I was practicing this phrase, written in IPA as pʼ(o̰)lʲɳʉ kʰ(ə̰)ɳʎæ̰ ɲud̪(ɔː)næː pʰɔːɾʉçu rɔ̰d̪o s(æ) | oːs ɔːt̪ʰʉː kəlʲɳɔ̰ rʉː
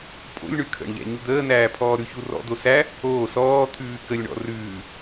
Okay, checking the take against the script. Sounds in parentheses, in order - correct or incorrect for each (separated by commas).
correct, correct, incorrect, correct